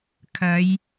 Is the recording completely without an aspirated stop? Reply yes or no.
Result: no